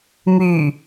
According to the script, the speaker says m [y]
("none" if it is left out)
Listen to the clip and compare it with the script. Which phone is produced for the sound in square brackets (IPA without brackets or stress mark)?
y